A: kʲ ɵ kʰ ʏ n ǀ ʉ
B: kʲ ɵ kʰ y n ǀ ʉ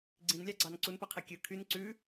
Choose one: B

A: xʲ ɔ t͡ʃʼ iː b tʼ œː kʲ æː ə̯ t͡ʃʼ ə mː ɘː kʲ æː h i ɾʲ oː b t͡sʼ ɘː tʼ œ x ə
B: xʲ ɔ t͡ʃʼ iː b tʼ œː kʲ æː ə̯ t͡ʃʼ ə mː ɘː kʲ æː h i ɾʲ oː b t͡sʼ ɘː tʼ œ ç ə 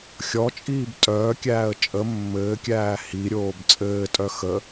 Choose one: A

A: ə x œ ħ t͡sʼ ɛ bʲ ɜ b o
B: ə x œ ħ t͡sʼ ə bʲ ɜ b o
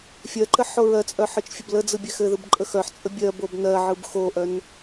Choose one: B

